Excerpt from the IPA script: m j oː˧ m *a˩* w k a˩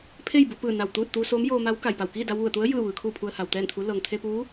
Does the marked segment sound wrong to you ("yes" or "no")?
yes